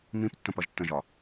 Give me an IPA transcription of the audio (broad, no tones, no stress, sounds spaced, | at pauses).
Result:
m ĩ p tː ə̃ p ʌ ʒ tː ə̃ ʒ ɒ